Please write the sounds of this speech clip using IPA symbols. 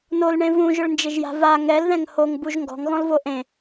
n o l ɳ ẽ v ũ ʒ ʊ ɭ n d͡ʒ ɪ ʒ j a̤ v a ŋ ɛ l ð ɛ̃ ŋ h o ŋ b u ʒ ŋ ɡ ɔ̤ ŋ ɣ ɔ̃ l v o ʔ ẽ

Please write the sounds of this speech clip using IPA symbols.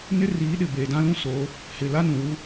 n ɪ˦ r iː˨˦ ɗ ɪ˨ b eː˨ d ã˦ l ũ˦ s oː˨˦ | h ɪ˨ l a˦ n ũ˨ w u˦

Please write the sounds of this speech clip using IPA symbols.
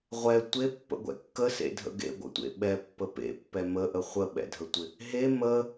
ʁʷ ɛ tʷ e pː ə̰ ɡʷ ɛ̰ kː ə s ḛ dʱ ə̰ ɡ ḛ ɡʷ ə̰ tʷ ḛ ɓ ɛ pː ə p ḛ pː ɛ m ə ʔ ə χʷ ə ɓ ɛ̰ dʱ ə tʷ ɪ | ɦ e m ə

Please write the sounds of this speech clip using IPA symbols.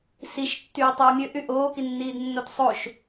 s i ʃ tː yː tˤ ɯː mʲ ø ʔ y ʔ oː k i nː iː d nː o t sˤ o ʃ

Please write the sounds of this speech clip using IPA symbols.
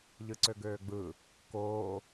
ʎ ɯ ǀ ø ɡ øː ɡ͡b ɯ | k oː

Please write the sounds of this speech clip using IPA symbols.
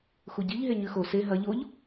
x u ɟ i ʎ ɦ e ɲ ʉ x o s e ɦ ɐ ʎ o ʎ

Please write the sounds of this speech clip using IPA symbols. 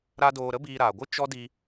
ɾ a˦ d oː˧ ɾ ə˦ b iː˧ ɾ aː˨ ɡʷ ɨ˦ t͡ʃ ɔ˦ d i˧

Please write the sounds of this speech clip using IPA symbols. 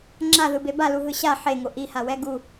ŋ͡ǁ a ð ɯ b e b a l u ɦ ɯ ɕ a ħ e ŋ o ʔ i h a w ɛ ɡ u

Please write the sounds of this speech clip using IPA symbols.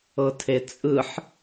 ɤ tʰ e t͡sʼ ɯ ħ

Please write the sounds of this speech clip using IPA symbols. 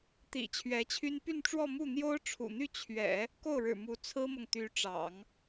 t̪ ḭ˨˩ t͡ɕʰ ɥ ɛ˧˥ t͡ɕʰ y˥ n p y˥˧ n ʈ͡ʂ w ɔ˥˧ m u˥˩ n̪ j o˥ ʊ̯ ʈ͡ʂʰ ṵ˨˩ n̪ y˥˩ t͡ɕʰ ɥ ɛ̰˨˩˦ | k o˥˩ ʊ̯ ɻ ɻ̩˨˩ m u˧˥ t͡sʰ ɹ̩˥ m ɤ˨ ŋ t̪ y˧˥ ʈ͡ʂ ɑ̰˨˩˦ ŋ

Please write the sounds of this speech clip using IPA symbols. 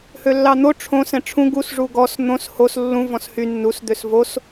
h ø lː ɑ n̪ o ʈ͡ʂʰ õ s ɛ̃ ʈ͡ʂʰ ũ ɡ u s ʐ u ɡ ɔ s n̪ õ s h o s lː ũ v ɔ̃ s h y nː u s d̪ ø s v o s

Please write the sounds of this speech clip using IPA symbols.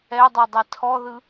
ɛ dˤ ɛ dˤ ɛ tʰ ɔ ð ɯ

